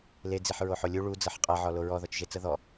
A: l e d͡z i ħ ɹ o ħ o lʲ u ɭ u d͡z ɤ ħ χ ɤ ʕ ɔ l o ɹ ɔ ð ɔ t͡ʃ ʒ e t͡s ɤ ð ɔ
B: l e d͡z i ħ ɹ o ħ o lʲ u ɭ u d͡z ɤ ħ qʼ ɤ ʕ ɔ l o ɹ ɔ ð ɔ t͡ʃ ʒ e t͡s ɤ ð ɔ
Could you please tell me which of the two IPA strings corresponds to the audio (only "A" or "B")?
B